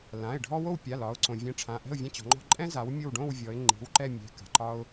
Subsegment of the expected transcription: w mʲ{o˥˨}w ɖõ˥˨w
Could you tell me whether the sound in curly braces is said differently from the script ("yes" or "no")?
no